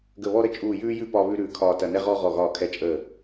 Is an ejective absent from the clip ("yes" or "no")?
no